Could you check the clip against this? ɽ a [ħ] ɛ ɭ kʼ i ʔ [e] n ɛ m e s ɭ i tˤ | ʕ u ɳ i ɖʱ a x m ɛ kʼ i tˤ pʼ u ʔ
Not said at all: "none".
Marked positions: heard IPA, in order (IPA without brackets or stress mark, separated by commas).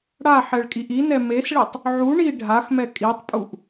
ħ, i